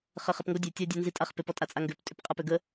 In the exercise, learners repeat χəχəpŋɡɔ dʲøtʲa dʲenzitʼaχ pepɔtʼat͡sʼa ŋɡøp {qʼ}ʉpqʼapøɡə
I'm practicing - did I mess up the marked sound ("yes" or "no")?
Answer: yes